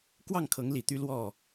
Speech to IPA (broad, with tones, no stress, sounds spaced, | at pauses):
k w ɑ˥˨ ŋ kʰ ɤ˨˦ ŋ l i˨˩ t̪ y˦ l w ɔ˥˨